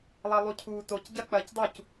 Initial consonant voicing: voiced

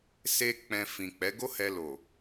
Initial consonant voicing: voiceless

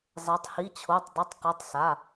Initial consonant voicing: voiced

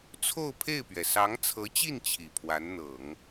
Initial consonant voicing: voiceless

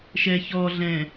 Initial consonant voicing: voiceless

